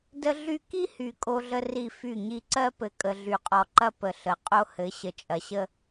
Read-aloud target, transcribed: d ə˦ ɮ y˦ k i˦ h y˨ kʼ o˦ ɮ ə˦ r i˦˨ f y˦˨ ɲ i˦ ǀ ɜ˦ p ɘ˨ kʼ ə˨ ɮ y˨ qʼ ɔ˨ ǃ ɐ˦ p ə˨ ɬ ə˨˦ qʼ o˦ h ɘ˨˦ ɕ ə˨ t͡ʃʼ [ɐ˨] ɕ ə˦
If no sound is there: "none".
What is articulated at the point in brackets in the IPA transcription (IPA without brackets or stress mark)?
ɐ˨